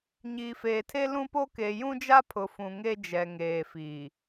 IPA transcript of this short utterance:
ɲ iː˨ f eː˨ tʰ e˦ l ũ˦ p o˦ k e˨ j ũ˦ d͡ʒ a˦ pʰ ʊ˨ f ũ˨ ŋ e˦ d͡ʒ ɛ˨ ŋ eː˨ f iː˨

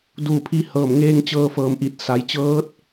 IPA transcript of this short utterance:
d uː˧˩ pʰ i˧ h ɤː˧˩ m ŋ eː˧ ŋ t͡ɕ ɤː˧ f ɤː˧˩ m ʔ i˧˩ t̚ s a˩˧ j t͡ɕ ɤː˧˥ t̚

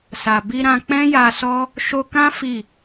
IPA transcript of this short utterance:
s a˨ b i˧ ɾ ã˧ k͡p ɛ̃˦ j a˧ s ɔ˦ | ʃ o˧ k ã˦ f i˦˨

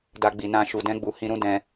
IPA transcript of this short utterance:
d a˦ ɡ͡b i˧ n ã˦ ʃ u˧ d ɛ̃˦ ɡ͡b u˧ h ĩ˧ ɾ ũ˦ d ɛ̃˧

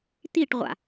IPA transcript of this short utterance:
t̪ i ʈ ʁʷ a̰

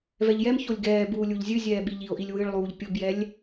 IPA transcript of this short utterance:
v ɛ ʎ j ɛ m ç o lʲ ɡ ɛː b uː lʲ u ʎ zʲ ɨ zʲ ɛː ɓ i ʎ i o̯ ʔ i lʲ w ɨ ɭ lˠ uː ʎ pʲ ʊ b j ɛ lʲ

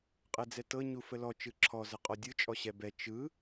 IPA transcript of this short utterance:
qʼ ɛ d͡z ɛ t ɤ ɲ u f ə l ɔ t͡ʃ ɯ ǁʰ ɔ z ə qʼ ɔ dʲ ɯ t͡ʃʼ ɔ ɕ ɛ b ɛ t͡ʃ ɯ

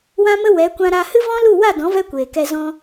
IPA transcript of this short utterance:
w ã˦ m ə˦ w ɛ˨˦ kʷ ã˧ ɾ a˧ h ɨ˦ v ɔ̃˦ l u˦˨ w a˦˨ d ɔ̃˨˦ v ɛ˦ kʷ eː˨ k ɛ˧ z ɔ̃˧

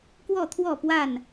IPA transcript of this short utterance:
k w ɔ˥˨ t̪ʰ w ɔ˥˨ p w a˥˨ n

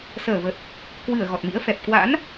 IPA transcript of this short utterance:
s əː˧˩ v ə˨˩ t̚ | k w ɨ˧˩ ə̯ ɣ ɔ˨˩ t̚ m ḭ˧˥ ə̯ f ɛ˨˩ p̚ k w a̰˧˥ n

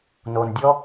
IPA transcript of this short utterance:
n o˨ n dʲ ɔ˦

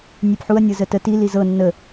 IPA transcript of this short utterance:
nʲ e p ħ u ɐ̯ nʲ ɤ z ə t ə t i l i z ɤ nː ə

